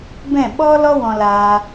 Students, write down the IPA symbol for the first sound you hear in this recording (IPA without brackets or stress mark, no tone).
b